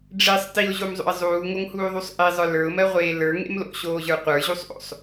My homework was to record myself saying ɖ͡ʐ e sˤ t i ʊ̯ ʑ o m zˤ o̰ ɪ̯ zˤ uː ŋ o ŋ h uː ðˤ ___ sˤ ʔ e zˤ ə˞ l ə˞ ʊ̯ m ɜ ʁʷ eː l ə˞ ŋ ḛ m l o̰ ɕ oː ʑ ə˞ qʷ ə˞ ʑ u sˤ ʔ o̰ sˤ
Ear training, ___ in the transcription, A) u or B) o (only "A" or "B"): A